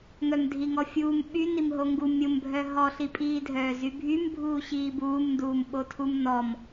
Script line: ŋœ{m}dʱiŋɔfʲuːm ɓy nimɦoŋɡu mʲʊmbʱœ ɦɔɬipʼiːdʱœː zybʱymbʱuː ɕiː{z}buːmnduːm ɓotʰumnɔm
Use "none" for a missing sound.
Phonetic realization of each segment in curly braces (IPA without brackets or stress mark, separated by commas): m, none